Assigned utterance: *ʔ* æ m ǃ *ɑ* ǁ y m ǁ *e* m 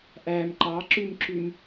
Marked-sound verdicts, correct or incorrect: correct, correct, incorrect

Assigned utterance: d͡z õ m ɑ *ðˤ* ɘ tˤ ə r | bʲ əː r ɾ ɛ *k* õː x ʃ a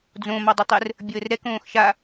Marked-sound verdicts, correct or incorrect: incorrect, correct

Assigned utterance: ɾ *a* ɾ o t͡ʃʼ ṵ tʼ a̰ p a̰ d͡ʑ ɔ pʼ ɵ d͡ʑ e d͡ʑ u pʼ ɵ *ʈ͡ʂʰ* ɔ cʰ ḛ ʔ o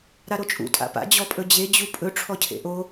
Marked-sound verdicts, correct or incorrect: correct, correct

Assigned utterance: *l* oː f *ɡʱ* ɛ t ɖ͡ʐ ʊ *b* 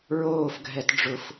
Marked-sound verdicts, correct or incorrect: incorrect, correct, incorrect

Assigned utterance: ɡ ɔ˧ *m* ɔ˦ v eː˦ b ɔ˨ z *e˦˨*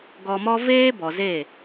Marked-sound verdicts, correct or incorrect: correct, correct

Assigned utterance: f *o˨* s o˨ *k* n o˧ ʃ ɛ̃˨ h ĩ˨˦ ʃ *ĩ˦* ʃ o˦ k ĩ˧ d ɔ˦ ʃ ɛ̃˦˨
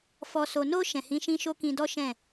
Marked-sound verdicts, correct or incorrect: incorrect, incorrect, correct

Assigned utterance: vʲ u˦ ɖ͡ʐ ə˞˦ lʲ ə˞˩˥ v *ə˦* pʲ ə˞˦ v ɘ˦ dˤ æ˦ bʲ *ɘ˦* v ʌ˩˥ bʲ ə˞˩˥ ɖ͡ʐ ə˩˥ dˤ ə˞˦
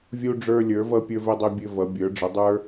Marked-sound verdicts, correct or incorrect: incorrect, correct

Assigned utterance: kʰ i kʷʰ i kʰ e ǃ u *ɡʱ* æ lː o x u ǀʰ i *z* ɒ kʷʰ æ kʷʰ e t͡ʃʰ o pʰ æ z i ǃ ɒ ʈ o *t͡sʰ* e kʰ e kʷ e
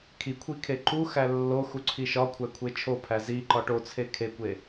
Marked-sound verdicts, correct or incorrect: incorrect, incorrect, correct

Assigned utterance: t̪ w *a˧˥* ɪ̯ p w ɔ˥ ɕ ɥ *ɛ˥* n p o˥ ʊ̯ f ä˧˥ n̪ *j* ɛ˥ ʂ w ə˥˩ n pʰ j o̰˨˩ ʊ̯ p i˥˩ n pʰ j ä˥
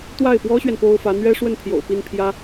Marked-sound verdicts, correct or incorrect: incorrect, incorrect, incorrect

